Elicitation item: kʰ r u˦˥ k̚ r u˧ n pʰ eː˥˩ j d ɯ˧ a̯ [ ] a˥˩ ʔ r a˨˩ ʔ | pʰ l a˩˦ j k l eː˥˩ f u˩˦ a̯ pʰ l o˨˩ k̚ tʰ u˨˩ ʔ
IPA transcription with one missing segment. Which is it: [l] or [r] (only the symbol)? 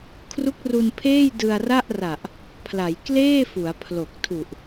r